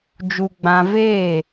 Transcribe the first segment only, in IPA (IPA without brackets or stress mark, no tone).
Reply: d͡ʒ